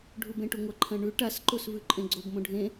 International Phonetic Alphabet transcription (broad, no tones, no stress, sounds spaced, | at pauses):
ɖʱ u b ẽ ʈ u ŋʷ ɐ ǃʰ ɐ̃ ɳ ʉ ʈ a s ǃ o s v ʉ ǃʼ ẽ ɡ͡ǀ o b m õ ɖʱ ẽ